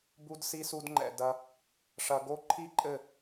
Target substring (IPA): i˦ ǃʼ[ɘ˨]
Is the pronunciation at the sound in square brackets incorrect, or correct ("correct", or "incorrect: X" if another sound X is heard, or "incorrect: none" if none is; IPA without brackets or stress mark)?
incorrect: ɘ˦˨